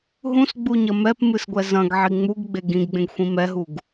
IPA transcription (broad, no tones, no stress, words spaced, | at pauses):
ɦũsɡ͡buɲɐ mɛpmɨsɡʷɛ zɐ̃ɡʕi ŋ͡muɡɡ͡be ɡĩɡɡ͡bẽɡxʷĩ mɛɦuɡ